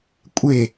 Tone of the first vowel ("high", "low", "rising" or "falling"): falling